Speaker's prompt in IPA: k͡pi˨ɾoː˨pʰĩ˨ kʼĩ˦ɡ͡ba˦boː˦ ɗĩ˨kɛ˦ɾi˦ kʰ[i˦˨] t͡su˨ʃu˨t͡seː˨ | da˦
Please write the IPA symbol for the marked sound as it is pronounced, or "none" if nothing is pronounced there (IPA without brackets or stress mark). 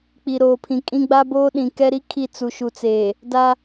i˦˨